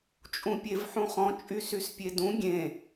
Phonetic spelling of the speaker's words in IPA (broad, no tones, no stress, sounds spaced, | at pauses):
t͡ʃʼ ũ pʲ e v ħ ũ χ ɔ̃ t͡ʃʼ y s y s pʲ e d ũ ɡʲ ẽ